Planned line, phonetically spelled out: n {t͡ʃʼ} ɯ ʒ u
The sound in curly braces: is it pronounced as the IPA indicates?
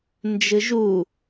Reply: no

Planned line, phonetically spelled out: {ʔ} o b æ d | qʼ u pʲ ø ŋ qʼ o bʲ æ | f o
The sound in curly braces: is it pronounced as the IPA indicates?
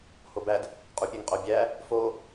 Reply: no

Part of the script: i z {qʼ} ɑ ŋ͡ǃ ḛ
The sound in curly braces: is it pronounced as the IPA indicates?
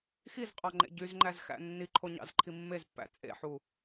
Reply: yes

